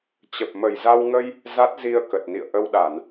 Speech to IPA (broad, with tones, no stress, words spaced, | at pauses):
t͡ɕə˨˩p̚mə˨˩jza˧wŋə˧j | za˦˥t̚zi˧ə̯ kə˨˩t̚nḭ˧˨ə̯ʔə˧wɗa˧˩˨n